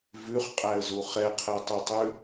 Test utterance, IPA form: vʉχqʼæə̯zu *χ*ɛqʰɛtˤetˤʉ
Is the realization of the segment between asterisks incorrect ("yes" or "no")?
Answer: no